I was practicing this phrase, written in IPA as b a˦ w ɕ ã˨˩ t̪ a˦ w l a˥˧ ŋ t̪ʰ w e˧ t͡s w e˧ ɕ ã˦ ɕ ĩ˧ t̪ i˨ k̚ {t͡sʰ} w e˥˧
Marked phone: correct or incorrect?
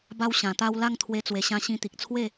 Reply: correct